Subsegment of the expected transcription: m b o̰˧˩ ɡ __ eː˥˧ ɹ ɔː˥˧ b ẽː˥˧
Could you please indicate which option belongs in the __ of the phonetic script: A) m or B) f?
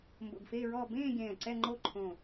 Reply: B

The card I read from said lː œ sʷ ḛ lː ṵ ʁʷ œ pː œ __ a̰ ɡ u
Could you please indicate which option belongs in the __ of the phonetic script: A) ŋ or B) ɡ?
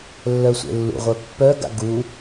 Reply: B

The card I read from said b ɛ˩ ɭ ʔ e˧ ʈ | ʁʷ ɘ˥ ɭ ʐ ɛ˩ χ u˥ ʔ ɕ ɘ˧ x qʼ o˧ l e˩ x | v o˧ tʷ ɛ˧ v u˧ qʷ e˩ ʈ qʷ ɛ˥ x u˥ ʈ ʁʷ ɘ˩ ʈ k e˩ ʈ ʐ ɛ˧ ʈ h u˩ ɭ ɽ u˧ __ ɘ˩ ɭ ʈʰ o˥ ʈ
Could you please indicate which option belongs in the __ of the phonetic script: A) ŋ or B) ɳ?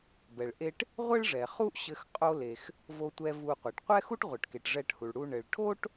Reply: B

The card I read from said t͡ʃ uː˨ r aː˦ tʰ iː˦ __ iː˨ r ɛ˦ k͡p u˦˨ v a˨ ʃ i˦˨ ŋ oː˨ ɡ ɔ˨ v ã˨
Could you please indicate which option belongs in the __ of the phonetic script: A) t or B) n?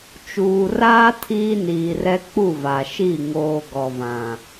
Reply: B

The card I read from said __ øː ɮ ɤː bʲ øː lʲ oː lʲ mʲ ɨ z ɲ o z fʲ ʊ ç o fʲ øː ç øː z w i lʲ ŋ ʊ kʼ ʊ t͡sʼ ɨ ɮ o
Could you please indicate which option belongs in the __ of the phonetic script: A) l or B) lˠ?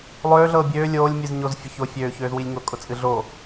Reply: B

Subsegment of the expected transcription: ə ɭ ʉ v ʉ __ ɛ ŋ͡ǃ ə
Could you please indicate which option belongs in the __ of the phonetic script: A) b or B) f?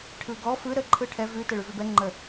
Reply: A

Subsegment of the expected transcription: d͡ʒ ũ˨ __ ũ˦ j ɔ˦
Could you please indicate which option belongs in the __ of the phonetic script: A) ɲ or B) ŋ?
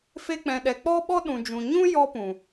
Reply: A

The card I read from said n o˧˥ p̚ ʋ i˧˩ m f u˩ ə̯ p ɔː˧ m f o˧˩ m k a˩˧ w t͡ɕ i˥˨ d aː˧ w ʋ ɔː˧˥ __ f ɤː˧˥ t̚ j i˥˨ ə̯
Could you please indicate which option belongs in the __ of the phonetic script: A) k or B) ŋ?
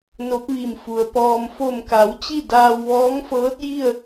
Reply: B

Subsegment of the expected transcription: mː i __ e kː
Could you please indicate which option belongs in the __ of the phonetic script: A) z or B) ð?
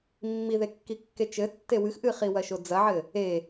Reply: B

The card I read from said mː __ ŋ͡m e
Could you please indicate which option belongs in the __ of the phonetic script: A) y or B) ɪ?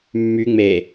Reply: A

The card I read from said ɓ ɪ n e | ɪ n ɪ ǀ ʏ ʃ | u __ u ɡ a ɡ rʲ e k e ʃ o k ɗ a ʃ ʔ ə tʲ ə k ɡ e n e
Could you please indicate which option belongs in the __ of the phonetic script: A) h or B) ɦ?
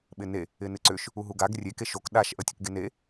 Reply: B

